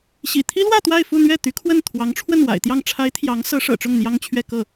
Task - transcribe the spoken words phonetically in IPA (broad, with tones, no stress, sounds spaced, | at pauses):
ɕ ḭ˨˩ t̪ʰ i˥ l w ä˥˧ t̪ w a˥˧ ɪ̯ f u˥˧ n̪ ɥ ɛ˥˩ t̪ y˧˥ kʰ w ə˥˩ n t̪ʰ w ɑ˧˥ ŋ ʈ͡ʂʰ w ə˥˩ n w a̰˨˩ ɪ̯ t̪ j ɑ˥˩ ŋ ʈ͡ʂʰ a˧˥ ɪ̯ t̪ʰ j ɑ˧˥ ŋ s ɤ˧˥ ʂ ɤ̰˨˩ ʈ͡ʂ ʊ˥˩ ŋ n̪ j ɑ˥ ŋ t͡ɕʰ ɥ ɛ˥˧ k ɤ˥˩